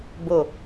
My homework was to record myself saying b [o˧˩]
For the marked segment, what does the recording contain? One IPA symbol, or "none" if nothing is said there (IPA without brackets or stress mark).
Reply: o˧˩